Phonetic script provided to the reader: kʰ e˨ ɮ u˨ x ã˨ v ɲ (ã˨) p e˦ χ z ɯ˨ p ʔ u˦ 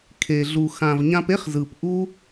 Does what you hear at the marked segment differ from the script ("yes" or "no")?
yes